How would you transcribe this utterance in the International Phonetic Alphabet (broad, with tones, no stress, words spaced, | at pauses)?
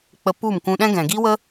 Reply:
k͡pə˧ pu˦˨mkũ˧ɗɛ̃˦ɡɛ̃˨ ɡi˦wə˦